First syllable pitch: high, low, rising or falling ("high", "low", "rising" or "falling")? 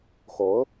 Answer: rising